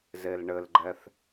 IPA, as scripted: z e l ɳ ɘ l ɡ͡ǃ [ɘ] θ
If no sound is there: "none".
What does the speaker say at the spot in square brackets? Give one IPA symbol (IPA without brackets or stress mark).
ɛ